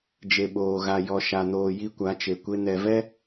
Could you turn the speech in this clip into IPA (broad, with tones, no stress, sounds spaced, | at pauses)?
d͡ʒ e˨ ɓ oː˨ ɣ a˨ j ɔ˨ ʃ a˨ n oː˨ j i˦ kʷ a˨˦ t͡ʃ e˨ kʷ e˦ n ɛ˨ v ɛ˦